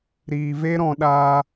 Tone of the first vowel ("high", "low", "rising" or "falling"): low